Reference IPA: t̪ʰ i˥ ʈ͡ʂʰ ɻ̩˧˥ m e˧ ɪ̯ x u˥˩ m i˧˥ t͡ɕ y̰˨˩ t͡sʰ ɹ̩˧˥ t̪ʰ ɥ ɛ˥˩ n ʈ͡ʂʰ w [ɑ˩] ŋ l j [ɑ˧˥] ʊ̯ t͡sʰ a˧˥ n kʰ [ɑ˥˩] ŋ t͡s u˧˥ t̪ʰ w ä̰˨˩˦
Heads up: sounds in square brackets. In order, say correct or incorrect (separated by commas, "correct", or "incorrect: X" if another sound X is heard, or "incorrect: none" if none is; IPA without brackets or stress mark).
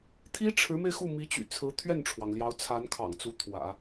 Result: correct, correct, incorrect: ɑ̰˨˩